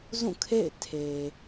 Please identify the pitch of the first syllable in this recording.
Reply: falling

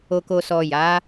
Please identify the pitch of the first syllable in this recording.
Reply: low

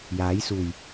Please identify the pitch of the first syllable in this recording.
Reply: rising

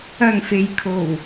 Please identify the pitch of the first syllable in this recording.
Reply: low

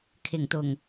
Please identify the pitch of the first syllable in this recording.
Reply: low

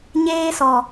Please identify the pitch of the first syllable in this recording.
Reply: high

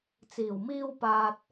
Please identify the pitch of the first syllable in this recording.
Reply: low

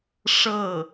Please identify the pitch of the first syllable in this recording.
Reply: falling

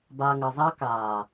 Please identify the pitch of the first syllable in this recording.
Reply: high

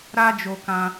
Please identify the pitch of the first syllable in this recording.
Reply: high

